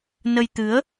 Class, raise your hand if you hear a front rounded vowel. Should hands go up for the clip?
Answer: no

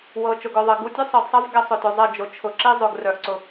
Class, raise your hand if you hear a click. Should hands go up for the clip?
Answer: yes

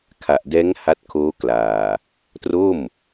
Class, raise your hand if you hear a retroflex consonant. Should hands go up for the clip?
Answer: no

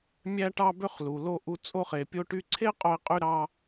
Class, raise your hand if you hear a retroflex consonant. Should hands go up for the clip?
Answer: yes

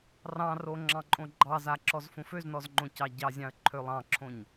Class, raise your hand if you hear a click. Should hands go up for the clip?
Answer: yes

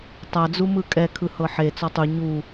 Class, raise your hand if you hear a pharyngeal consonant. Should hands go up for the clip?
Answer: yes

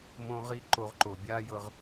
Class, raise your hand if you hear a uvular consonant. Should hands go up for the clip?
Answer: yes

